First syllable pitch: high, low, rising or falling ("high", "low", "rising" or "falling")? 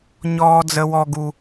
high